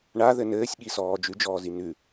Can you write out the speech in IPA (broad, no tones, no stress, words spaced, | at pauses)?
ɳaðɘ nɘːsʲɠisɔː d͡ʒʉd͡ʒɔːzi nʉ